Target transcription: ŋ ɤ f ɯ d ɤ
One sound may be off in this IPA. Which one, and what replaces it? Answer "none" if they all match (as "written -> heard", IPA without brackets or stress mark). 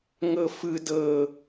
none